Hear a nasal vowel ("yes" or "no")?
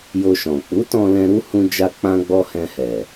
yes